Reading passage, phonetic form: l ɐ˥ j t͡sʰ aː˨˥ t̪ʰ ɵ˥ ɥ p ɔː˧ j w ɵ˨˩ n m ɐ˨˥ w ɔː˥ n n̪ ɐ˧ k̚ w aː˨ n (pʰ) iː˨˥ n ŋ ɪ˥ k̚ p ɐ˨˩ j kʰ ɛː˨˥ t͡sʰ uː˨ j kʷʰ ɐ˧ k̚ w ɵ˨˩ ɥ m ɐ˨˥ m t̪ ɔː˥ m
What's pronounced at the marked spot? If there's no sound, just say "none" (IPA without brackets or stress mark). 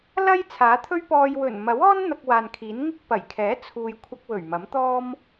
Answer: kʰ